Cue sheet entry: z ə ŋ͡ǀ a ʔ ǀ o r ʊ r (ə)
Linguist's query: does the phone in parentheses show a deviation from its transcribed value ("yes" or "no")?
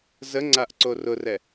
yes